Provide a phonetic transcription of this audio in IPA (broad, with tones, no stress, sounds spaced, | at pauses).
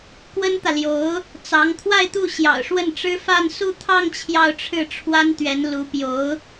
k w ə˥ n t̪ ä˨ l j o˧˥ ʊ̯ | t͡s ɑ˧˥ ŋ t̪ʰ w a˥˧ ɪ̯ t̪ u˥˩ ɕ j ɑ̰˨˩ ʊ̯ ʂ w ə˥˩ n ʈ͡ʂ ɻ̩˥ f a˥˧ n s u˥˧ t̪ʰ ɑ˥˧ ŋ t͡ɕʰ j ɑ˥˧ ʊ̯ ʈ͡ʂʰ ɻ̩˥˩ ʈ͡ʂʰ w a˥ n t̪ ɥ ɛ˧˥ n l u˧˥ p j o˧˥ ʊ̯